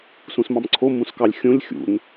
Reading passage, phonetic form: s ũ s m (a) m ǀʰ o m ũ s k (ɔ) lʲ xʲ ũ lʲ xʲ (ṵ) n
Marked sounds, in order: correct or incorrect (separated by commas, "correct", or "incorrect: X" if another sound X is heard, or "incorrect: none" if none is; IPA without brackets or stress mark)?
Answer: incorrect: ɑ, incorrect: ɑ, correct